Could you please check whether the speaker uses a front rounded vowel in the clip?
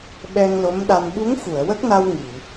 no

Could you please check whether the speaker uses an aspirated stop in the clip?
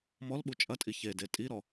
no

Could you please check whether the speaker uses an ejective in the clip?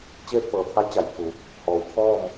no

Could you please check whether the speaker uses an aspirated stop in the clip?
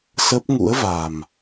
no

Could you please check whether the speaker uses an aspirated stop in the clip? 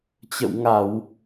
no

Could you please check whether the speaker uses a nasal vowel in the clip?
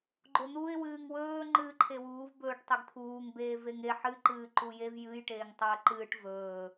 no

